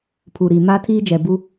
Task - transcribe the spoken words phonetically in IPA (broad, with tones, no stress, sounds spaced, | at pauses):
pʰ u˨ ɾ i˨ m a˦ tʰ iː˦ d͡ʒ ɛ˨ b u˦